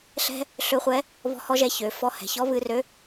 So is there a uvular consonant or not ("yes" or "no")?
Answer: yes